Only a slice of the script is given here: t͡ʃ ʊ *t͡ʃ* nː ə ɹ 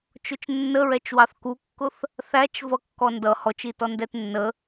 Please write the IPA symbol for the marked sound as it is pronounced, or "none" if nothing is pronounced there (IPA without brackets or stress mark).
t͡ʃ